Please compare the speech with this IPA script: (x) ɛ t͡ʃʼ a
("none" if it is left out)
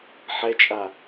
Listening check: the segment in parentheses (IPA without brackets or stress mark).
ħ